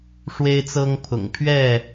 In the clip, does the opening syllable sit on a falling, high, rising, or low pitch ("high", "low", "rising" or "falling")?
high